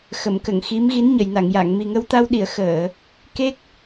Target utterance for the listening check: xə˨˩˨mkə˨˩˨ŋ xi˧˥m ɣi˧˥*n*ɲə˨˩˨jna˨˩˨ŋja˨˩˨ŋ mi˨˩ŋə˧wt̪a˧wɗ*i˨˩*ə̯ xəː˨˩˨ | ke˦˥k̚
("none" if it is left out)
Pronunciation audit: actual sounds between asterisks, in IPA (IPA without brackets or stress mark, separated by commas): n, i˨˩˨